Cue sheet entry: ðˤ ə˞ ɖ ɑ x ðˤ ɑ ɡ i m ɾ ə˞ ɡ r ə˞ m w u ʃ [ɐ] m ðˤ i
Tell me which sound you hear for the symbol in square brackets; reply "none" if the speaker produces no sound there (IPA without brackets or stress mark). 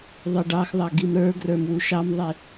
ɑ